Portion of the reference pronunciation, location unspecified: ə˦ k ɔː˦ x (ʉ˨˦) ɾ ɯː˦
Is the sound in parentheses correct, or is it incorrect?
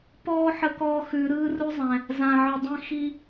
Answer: correct